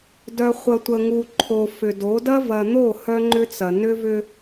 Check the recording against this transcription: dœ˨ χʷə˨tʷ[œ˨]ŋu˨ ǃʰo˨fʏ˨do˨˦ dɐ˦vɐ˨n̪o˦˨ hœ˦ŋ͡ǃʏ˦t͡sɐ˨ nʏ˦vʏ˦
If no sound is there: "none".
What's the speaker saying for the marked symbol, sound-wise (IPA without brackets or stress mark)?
ə˨